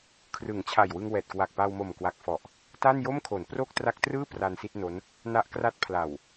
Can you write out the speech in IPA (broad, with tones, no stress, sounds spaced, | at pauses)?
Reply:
kʰ r ɯ˩˦ ŋ t͡ɕʰ a˨˩ j w ɯ˧ ŋ w ɛː˨˩ t̚ k w a˨˩ k̚ p a˧ w m o˨˩ m k w a˨˩ k̚ f ɔ˨˩ ʔ | t a˥˩ n j o˥˩ m kʰ o˩˦ n p r o˥˩ k̚ t r a˦˥ k̚ t r ɯː˥˩ p r a˧ n s i˥˩ t̚ n o˦˥ n | n a˦˥ ʔ k r a˦˥ t̚ pʰ l a˨˩ w